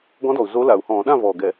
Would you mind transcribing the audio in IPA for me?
ɡɔ̃˧˥dɔ˨˩u̯ zo˧˥la˨˩u̯hɔ̃ː˧˩˧ ɗã˥˨vɔː˨˩ɡɛ˧˩˧

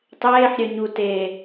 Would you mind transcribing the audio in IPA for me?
tˤeːħɾʲœ ɲu te

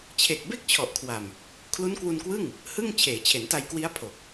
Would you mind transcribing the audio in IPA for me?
t͡ɕʰe˨˩k̚ be˥˩k̚t͡ɕʰɔ˨˩ʔkʰwa˨˩m | kʰlu˦˥nkwu˧nkwɯ˥˩ŋ | hɯ˥˩ŋ t͡ɕʰeː˩˦t͡ɕʰe˩˦nta˧jkwi˦˥a̯ pʰo˨˩k̚

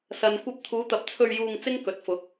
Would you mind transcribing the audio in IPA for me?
sɐ˨nkʷɐ˧p̚t̪ʰuː˨˧ t̪ɐ˨˥p̚t͡sʰɵ˧ɥ juː˧ŋ t͡sɪ˥ŋkɵ˨˥t̚fʊ˨˥k̚

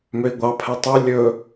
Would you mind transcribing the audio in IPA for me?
møi̯ɡʷɑpʰɛ tˤu lʲɵ

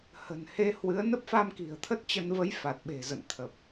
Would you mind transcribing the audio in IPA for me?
hə̤˨˩nhe˧hwɨ˨˦ə̯ nə˦˥p̚fa˧mki̤˨˩ə̯ t̪ʰə˦˥t̚t͡ɕə˧n və˨˦j fa˨˩t̚ɓe̤˨˩zə̰˧˨nt̪ʰə˨˩p̚

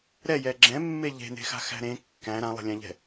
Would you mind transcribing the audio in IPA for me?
ɾɛjɛ ɡ͡ǁɛ̃mːe ʎe̤ne̤xa̤xæ̤ ɾẽ kːæ̃ ɾãlˠɛ̤lʲæ̃ʎɛ̤

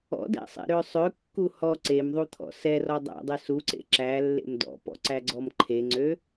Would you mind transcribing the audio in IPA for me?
ɔ̰dæ̰sˤḛɾø sˤøkːu hɔ ǀemðˤut̪ʰɔ̰ sɛrɔ dˤæ̰dˤø suǀḛ ǁælːḛm dɔ̰pɔ̰ǀæɡ͡ǀɔm ǃʰeŋ͡ǀø

